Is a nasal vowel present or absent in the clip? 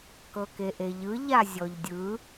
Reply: absent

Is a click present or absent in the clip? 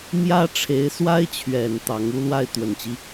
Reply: absent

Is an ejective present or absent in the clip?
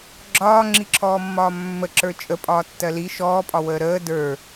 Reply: present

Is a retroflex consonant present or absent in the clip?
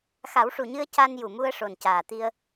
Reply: present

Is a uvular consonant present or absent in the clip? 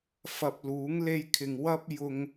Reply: absent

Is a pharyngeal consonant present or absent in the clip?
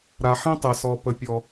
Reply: present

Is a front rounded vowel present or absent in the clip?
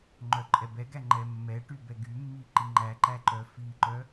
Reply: present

